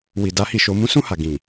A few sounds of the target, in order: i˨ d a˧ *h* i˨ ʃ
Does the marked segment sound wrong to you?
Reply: no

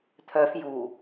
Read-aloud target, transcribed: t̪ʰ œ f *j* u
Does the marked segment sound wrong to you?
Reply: no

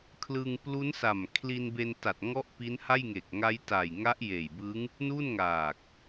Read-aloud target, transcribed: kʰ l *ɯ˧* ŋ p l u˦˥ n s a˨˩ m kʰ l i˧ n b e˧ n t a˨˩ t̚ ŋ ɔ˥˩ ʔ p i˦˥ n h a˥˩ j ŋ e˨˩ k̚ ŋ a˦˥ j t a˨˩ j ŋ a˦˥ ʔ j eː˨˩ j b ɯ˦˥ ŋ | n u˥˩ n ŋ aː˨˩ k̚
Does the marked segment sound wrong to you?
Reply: no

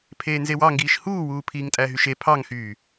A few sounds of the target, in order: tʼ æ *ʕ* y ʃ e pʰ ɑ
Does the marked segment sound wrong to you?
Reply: yes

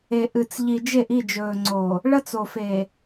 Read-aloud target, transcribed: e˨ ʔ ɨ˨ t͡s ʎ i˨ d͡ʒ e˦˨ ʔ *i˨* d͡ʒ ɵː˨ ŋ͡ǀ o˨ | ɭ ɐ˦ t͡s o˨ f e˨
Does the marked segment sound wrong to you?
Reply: yes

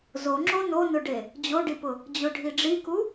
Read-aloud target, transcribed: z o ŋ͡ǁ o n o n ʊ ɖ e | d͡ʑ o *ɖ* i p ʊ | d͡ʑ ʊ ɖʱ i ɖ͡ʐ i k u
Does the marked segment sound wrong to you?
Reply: no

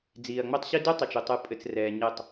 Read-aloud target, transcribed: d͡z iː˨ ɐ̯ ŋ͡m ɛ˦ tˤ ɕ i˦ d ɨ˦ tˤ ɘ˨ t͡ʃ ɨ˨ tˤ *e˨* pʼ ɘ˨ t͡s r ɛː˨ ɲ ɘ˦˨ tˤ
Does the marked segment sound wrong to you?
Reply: yes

